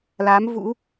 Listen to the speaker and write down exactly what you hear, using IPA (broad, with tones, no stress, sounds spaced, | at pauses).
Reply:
l a˨˦ m v ṵ˧˥